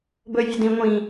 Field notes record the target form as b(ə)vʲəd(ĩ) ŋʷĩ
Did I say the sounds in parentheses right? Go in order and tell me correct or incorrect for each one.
incorrect: ɵ, correct

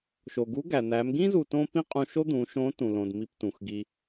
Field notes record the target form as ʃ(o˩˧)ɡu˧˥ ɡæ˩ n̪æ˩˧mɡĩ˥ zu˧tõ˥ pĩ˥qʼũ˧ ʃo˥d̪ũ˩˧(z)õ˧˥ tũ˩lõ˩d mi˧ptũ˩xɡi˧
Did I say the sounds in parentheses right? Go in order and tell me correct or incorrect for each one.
incorrect: o˩, incorrect: ʃ

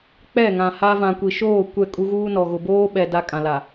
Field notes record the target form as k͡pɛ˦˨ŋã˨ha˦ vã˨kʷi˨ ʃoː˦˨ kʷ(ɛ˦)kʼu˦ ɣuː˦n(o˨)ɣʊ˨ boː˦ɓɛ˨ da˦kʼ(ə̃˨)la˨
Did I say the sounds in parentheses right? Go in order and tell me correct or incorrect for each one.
incorrect: ɛ˦˨, incorrect: ɔ˨, incorrect: ã˨

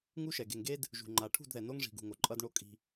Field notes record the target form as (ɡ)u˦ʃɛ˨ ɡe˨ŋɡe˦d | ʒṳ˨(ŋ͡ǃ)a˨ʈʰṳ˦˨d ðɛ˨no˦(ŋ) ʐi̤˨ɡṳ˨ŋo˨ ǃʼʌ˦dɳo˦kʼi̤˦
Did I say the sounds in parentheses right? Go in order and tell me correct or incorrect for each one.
incorrect: ŋ, correct, correct

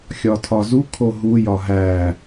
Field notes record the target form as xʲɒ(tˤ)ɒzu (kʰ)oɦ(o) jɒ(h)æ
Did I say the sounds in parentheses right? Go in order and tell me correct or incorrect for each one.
incorrect: tʰ, correct, incorrect: u, incorrect: ɦ

